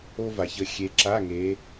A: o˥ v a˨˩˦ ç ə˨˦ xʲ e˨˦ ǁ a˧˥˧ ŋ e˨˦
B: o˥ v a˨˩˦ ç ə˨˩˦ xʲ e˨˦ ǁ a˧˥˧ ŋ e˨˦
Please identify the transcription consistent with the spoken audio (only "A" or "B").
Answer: A